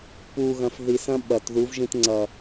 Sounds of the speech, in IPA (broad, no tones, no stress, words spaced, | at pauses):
puɣɐ̃f ðisɐ̃ ɓɐt ðuvʒĩtŋ͡ǀɐ